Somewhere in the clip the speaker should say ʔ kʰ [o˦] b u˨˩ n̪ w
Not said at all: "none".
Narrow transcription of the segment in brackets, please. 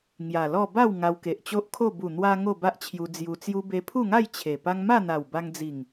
o˥˧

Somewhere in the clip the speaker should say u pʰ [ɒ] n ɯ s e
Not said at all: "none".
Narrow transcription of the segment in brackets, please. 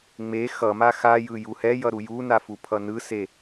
ʌ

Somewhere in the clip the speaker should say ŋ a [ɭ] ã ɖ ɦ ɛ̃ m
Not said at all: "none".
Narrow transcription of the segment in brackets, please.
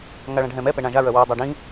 ɭ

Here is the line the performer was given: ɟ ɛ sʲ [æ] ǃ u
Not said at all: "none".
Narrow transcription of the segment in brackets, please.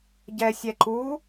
ɛ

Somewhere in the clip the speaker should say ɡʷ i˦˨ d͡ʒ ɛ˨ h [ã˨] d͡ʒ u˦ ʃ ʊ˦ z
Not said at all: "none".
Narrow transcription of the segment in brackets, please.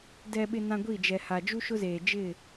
a˨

